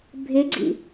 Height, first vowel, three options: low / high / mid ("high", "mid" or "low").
high